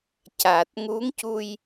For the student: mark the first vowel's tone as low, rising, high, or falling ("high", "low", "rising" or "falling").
low